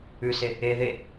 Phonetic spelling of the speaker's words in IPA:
ʉ s e | e ð e

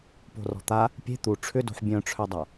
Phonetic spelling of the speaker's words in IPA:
p o̤ r ɔ̤ t̪ a | pʲ e̤ t̪ u ʈ͡ʂʰ ʏ d o̤ ħ bʲ œ̃ ʈ͡ʂʰ œ dˤ a

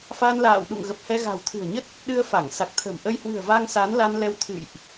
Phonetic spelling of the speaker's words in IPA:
f a˧ n l a̰ː˧˨ w ɗ ṵ˧˨ ŋ ɣ ə˨˩ p̚ h ɛ˧ ɣ a̤˨˩ w t̪ʰ ɨ̤˨˩ ə̯ ɲ ə˦˥ t̚ | ɗ ɨ˧ ə̯ f a˧˩ ŋ s a˨˩ k̚ t̪ʰ ə̤˨˩ m ʔ ə˧ j h w ɨ̤˨˩ ə̯ v a˧ ŋ s a˨˦ n l a˧ n l ɛ˧ w t̪ʰ ɨ̰˧˨ j ʔ

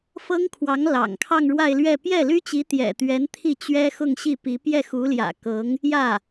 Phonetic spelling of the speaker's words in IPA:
f ɤ˥ ŋ kʰ w ɑ˧˥ ŋ l ɑ̰˨˩ ŋ kʰ ɑ˥˧ ŋ ɻ w a˥˧ ɪ̯ l ɥ ɛ˥˧ p j ɛ˥˩ l y˥ t͡ɕ i˧˥ t̪ j ɛ̰˨˩ t̪ ɥ ɛ˧˥ n t̪ʰ i˥˩ t͡ɕ ɥ ɛ˥ x ʊ˥˧ ŋ ɕ i˥˩ p i˧˥ p j ɛ˥˩ x u˧˥ l j ä̰˨˩ k ɤ˧˥ ŋ | j ä˥˩

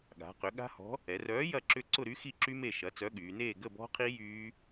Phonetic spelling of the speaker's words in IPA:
ɠ a̤˩˧ q ʏ˩˧ ɠ a̤˦˥ h ɔ̤˨˥ | ɛ˩˧ r œː˨˥ j ɐ˥˨ ǁ ʏ˥˨ ǀ ʊ˥˨ ɾ y˦˥ x i˥˨ ǁ y˦˥ m e˥˨ ʃ ɐ˨˥ t͡s œ˨˥ ɠ yː˩˧ n eː˥˨ ɡ ə˥˨ b ɔ̤˦˥ qʰ i˦˥ j yː˦˥

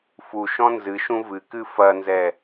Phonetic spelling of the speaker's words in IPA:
f u ʃ ɔ̃ n z ɨ ʃ ũ v ɨ k ɨ f ɐ n z ɛ

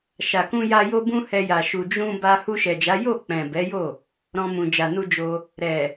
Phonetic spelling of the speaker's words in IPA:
ʃ a˨ k ũ˧ j a˧ j o˦ b ũ˦ h ɛ˧ j a˨ ʃ u˨ d͡ʒ ũ˧ b a˧ h u˧ ʃ ɛ˨ d͡ʒ a˨˦ j o˦˨ k͡p ɛ̃˨ b ɛ˨˦ j o˦˨ | ɾ ɔ̃˧ m ũ˨ d͡ʒ a˨ n u˧ d͡ʒ o˧ | ɾ ɛ˨

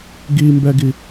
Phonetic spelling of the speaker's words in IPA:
ɡ i m b ɛ ɡ i

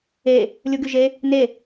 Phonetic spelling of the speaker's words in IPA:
e | lʲ u ɡ y ʒ e | n e

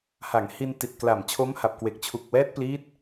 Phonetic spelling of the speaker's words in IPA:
h a˩˦ ŋ h i˧ n t i˨˩ t̚ k l a˨˩ m t͡ɕʰ o˦˥ m h a˨˩ p̚ k w e˨˩ k̚ t͡ɕʰ u˨˩ k̚ w ɛː˦˥ t̚ p l iː˦˥ t̚

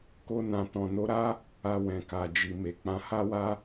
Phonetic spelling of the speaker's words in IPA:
k o˧ n ã˨ t ɔ̃˨ n o˨˦ ɾ a˦ | a˧ w ɛ̃˨ k a˨ d͡ʒ i˨ m e˨ k͡p ã˧ h a˦ w a˦

